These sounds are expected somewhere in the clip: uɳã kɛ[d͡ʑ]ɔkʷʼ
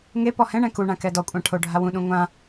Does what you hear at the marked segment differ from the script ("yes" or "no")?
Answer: yes